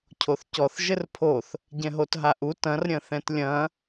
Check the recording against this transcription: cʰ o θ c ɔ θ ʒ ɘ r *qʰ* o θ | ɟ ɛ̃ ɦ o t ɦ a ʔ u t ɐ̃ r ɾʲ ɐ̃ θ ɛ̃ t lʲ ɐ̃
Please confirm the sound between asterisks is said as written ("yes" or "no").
no